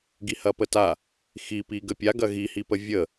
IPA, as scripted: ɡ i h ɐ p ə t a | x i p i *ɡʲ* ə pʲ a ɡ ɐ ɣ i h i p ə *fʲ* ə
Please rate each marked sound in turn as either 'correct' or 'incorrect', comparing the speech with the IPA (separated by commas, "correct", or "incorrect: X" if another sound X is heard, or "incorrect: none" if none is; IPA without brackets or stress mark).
incorrect: ɡ, incorrect: vʲ